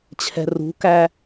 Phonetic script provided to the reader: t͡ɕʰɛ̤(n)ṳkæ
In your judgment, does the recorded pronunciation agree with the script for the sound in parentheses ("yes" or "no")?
no